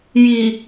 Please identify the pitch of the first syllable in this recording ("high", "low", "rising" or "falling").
low